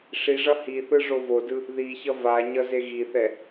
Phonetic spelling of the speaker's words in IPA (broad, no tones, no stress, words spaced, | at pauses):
ʂiʐʌ hiθɯ ʐovodɯ | ðiçʌ vaɲʌ zeɣiθɛ